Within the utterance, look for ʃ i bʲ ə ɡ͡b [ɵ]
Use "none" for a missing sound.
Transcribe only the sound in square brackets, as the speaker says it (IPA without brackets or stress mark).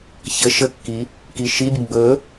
ɵ